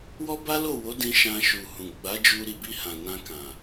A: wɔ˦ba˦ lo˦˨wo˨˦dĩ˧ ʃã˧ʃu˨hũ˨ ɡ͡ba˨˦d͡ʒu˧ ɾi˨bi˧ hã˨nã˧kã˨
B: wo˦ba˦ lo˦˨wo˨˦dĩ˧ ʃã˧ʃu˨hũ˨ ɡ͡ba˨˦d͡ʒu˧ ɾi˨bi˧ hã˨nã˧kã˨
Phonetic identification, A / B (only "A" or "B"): A